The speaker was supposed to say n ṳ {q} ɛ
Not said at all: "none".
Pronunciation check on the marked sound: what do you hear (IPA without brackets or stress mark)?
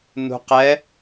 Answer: q